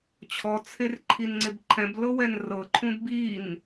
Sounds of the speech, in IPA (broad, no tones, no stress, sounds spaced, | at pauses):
t͡ɕʰ ɔ t͡sʰ e r ǃʰ i n ŋ͡ǀ e b ǃʰ ɛ̃ b l ɤ w ɛ n r ɤ ǃʰ ũ d b i n